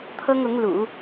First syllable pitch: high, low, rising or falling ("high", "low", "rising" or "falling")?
high